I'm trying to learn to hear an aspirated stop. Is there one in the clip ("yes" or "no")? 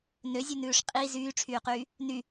yes